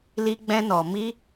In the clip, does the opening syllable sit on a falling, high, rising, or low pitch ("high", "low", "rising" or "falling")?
high